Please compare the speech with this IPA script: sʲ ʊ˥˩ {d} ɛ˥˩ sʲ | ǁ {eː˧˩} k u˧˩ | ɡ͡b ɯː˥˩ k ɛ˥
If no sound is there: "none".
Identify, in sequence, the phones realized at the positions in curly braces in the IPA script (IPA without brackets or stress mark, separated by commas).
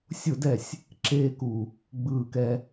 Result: d, eː˥